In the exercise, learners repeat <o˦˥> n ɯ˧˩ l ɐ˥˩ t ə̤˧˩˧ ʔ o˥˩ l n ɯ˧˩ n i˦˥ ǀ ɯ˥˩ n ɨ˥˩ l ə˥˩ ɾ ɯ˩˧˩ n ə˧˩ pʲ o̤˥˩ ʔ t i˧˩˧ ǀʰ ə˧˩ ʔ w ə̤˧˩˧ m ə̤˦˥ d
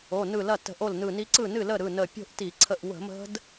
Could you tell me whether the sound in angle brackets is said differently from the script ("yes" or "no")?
yes